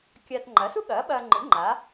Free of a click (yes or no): no